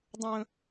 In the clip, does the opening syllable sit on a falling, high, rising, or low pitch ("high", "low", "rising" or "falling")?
low